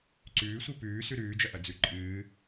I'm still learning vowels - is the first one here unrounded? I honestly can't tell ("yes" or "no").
no